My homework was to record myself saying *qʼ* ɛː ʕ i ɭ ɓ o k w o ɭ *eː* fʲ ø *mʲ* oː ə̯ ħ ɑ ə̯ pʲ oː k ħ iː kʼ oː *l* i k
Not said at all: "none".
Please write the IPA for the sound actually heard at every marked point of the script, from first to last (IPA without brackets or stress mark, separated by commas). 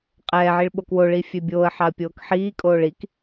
qʼ, iː, bʲ, ɭ